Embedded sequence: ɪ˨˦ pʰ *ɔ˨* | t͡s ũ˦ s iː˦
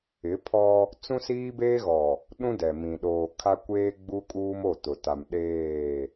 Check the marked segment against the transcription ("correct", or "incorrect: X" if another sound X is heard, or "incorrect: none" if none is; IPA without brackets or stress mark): incorrect: ɔ˦